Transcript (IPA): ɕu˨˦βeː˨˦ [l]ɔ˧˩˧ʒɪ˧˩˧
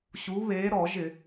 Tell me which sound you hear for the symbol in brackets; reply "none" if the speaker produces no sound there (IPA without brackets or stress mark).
ɾ